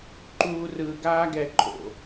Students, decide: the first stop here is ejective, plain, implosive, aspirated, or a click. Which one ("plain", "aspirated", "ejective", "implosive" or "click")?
click